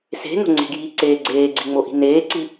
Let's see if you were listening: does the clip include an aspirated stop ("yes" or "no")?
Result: no